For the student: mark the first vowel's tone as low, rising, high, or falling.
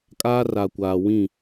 high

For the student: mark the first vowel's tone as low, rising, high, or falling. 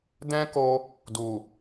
high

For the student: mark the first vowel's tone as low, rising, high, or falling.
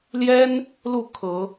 high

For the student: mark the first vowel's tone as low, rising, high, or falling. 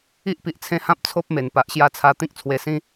high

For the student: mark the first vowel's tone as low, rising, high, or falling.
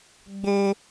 high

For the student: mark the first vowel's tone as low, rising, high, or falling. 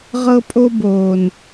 high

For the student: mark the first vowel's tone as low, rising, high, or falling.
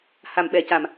low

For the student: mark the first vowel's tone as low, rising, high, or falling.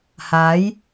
rising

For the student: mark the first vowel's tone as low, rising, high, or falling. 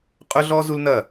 high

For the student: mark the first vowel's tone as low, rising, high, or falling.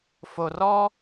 low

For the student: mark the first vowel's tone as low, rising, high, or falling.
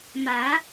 rising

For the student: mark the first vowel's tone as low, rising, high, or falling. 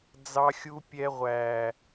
high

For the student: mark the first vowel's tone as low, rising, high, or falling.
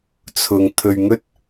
low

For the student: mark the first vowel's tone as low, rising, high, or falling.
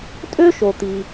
high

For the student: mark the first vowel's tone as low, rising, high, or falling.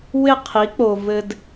falling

